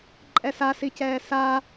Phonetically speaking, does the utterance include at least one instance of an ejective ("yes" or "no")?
yes